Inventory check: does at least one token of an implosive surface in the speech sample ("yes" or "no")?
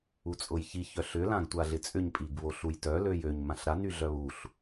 no